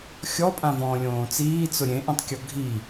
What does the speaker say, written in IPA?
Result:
xʲɔpʼãvɔ̃ːlʲõː t͡siːt͡sʊ ɾʲẽʔĩtˤkʲɔ ɡʱi

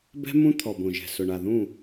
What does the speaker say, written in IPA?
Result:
bɛ̤˦mũ˦ t̪ʰɔ˨bõ˨ʒɛ̤˨ sʊ˨ ɳa˨ðũ˦˨

